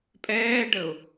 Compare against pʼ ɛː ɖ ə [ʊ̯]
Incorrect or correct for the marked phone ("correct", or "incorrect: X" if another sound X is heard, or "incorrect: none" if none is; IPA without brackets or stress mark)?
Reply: correct